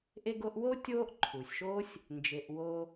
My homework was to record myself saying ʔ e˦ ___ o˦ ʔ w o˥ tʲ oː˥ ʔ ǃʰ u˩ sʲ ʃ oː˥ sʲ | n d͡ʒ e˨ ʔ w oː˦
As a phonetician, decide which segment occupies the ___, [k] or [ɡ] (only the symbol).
ɡ